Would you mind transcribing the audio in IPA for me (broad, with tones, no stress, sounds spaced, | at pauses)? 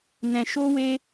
n ɛ̃˧ ʃ o˦ w e˦